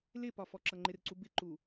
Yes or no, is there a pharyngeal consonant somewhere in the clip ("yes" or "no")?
no